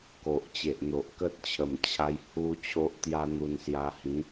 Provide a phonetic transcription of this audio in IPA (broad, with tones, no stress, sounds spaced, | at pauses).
k o˨ ʔ t͡ɕ e˨ ʔ n̪ o˨ ʔ k ə˦ t̚ t͡ɕʰ ə˨˩ m t͡ɕʰ a˧ j h u˦ t͡ɕʰ o˦ ʔ t̪ j a˦ n̪ u˧ n s j a˧ h ĩ˨˦